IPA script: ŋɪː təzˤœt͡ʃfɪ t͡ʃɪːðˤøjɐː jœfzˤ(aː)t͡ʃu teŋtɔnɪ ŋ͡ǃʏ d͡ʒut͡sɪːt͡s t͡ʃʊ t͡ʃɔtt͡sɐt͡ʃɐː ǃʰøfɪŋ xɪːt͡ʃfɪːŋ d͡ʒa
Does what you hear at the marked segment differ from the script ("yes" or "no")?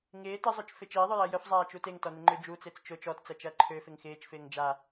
no